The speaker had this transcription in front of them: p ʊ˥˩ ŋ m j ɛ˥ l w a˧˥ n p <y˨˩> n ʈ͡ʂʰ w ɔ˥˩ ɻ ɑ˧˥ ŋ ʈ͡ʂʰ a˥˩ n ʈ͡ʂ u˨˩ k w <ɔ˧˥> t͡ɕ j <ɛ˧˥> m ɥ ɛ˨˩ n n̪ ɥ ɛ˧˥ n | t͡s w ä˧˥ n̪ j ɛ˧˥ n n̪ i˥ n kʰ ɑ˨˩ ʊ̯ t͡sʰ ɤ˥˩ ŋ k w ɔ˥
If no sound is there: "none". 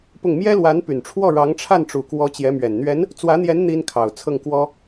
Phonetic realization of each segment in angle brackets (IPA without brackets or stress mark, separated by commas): y˨˩, ɔ˧˥, ɛ˧˥